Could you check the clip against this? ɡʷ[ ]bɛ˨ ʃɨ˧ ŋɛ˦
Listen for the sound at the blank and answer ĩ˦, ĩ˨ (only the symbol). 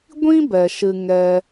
ĩ˦